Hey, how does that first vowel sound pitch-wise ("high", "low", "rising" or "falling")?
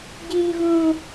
high